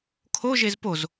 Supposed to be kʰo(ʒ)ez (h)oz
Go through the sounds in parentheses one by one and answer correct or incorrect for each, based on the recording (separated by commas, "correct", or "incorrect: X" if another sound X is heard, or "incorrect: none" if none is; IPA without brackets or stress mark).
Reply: correct, incorrect: p